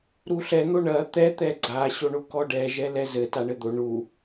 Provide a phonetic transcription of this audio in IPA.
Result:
ɾ u ɬ ɛ n̪ o ɳ ɐ t̪ ɛ t̪ ɛ ɡ͡ǀ a ɕ o ɳ o k ɔ ɖ ɛ ʒ ɛ l ɛ z ɘ t a ɳ ɘ d̪ o ɳ u

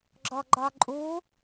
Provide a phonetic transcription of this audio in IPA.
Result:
ɡ͡ǁ ɔ ɡ͡ǃ ɒ ǃʼ u

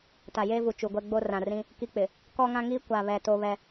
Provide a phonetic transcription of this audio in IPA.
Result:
t a˨ j eː˦ v u˨ t͡ʃ u˨ ɡʷ ɛ˦ ɡ͡b o˦ r ã˨ r ĩ˦ | k i˦ k͡p ɪ˨ | k ɔ˦ ŋ ã˦ ŋ iː˦ kʷ a˨ β ɛ˨ t o˦ β ɛ˦

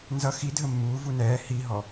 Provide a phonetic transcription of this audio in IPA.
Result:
n z ʌ x i dʱ ə mː uː v u n ɛː h i ɦ ɔ

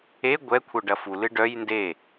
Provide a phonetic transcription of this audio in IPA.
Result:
e ɡʷ ɛ kʷʰ œ ɖ ɐ f u l ɨ ɖ œ j n d e

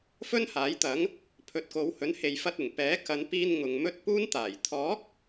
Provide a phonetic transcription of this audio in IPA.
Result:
f ɵ˥ n h aː˨˥ j t̪ ɐ˨˥ ŋ | pʰ ɵ˨ t̚ k o˨˧ w h ɵ˨˥ n h e˨ j f ɐ˧ t̚ ɪ˨˩ ŋ p ɛː˨˥ k ɐ˨˧ n p iː˧ n ŋ ʊ˨ ŋ m ɵ˥ t̚ p uː˥ n t̪ aː˨˩ j t̪ʰ ɔː˨˥ k̚

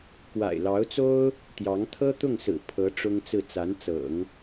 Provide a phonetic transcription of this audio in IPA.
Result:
k w a̰˨˩ ɪ̯ l ɑ˧˥ ʊ̯ t͡s o˥ ʊ̯ | t̪ j ɑ˧˥ ŋ t̪ʰ ɤ˥ t̪ ʊ˥˩ ŋ s ɹ̩˨˩ pʰ ɤ˧˥ ʈ͡ʂ ʊ˥ ŋ t͡s ɹ̩˥˩ t͡s a˧˥ n t͡s ɤ̰˨˩˦ ŋ

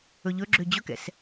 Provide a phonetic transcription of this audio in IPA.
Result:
ɵ ʎ ɵ ɡ͡ǁ ø d͡ʑ ɵ k ɛ̰ s

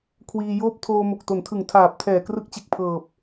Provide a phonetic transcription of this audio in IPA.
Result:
kʰ w iː˧ j oː˥˩ p̚ tʰ oː˧ m o˨˩ k̚ t o˩˦ n tʰ ɯ˨˩ ŋ tʰ aː˨˩ p̚ tʰ ɛː˨˩ k r ɯ˥˩ k̚ t͡ɕ e˦˥ k̚ pʰ ɤː˨˩ p̚

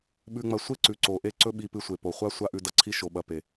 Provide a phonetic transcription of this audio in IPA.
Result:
ɓ ʉ˧ ŋ͡m ɐ˧ sʷ e˦ ǀ ʉ˨ ǀ o˨ ʔ e˦ ǀ ɵ˦ ɓ i˧ p ɨ˧ sʷ e˨ p o˨ χʷ a˦ sʷ a˦ ʔ ʉ˧ d ɐ˦˨ ǀʰ i˦ ʃ o˧ ɓ ɐ˧ p e˨

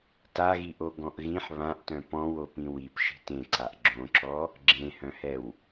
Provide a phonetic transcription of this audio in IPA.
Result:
t a ɣ i ʔ o ɡ ɔ̃ ʔ ɣ ĩ ħ β ã ʔ t œ̃ p ɔ̃ w o p ĩ w i p ʃ i̤ t ẽ ǀ a ʔ ɡ͡ǁ õ ǁ ɔ | ɡ͡ǁ ẽ h œ̃ h ɛ w

